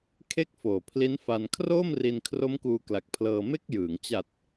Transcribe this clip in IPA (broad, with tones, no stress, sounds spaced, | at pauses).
kʰ e˥˩ k̚ f oː˨˩ pʰ l i˦˥ n f a˧ n kʰ r oː˥˩ m r i˧ n kʰ r o˦˥ m k uː˧ k l a˨˩ k̚ pʰ l ɤː˧ m e˥˩ k̚ j ɯː˩˦ ŋ t͡ɕ a˨˩ t̚